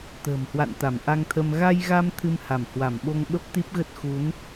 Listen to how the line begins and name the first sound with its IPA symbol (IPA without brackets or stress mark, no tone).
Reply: t̪